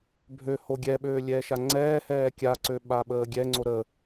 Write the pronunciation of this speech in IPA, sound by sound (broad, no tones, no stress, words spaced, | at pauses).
bʱø hoɡʲɛɓøː lʲɛːʃaŋ͡ǀɛːhɛː kʲaǀø ɓaɓəːɡʲɛŋ͡ǀo ɾə